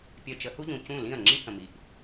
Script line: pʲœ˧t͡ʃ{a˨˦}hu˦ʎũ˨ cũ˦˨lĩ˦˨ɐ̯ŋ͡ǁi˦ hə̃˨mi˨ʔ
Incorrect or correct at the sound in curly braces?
incorrect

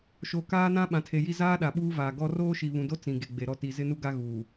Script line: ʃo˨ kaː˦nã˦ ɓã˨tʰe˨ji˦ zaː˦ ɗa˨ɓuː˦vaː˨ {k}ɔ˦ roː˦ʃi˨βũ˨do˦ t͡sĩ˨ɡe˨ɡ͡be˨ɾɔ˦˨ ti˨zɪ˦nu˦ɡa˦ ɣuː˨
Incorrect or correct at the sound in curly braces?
incorrect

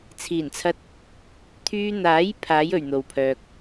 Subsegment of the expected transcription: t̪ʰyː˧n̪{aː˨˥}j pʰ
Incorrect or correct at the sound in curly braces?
correct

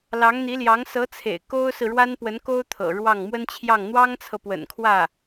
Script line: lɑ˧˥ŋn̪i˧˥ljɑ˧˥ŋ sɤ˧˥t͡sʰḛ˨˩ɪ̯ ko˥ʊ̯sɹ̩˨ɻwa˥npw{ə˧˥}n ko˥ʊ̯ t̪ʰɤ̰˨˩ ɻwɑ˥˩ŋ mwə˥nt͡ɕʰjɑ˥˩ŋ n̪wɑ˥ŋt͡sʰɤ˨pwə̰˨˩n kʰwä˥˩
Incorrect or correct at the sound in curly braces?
correct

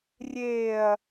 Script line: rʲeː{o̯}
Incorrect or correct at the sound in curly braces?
incorrect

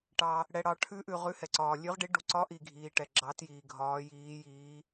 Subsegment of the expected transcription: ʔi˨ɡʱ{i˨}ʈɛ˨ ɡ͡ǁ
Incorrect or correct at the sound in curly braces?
incorrect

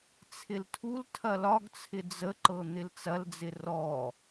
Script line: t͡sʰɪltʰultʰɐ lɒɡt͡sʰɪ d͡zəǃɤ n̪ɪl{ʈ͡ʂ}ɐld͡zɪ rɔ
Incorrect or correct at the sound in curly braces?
incorrect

